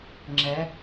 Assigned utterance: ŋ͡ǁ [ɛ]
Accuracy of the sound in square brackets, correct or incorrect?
correct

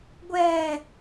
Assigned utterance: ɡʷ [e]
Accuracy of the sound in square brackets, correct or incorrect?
incorrect: ɛ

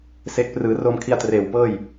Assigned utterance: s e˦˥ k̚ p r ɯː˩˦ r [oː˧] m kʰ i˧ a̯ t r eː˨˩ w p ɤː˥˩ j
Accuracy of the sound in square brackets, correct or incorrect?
correct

